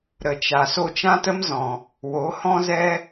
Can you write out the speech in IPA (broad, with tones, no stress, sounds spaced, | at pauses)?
ɾ ə˨ t͡ʃ a˨ s o˧ t͡ʃ ã˦ t ə˦ m z ɔ̃˨ | w o˨˦ h ɔ̃˦ z ɛ˦